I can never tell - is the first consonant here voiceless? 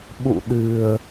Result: no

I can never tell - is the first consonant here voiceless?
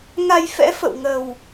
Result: no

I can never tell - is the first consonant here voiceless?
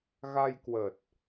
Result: no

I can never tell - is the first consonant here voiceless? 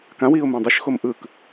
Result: yes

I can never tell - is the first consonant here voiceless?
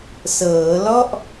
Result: yes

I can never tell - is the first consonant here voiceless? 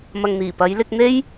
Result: no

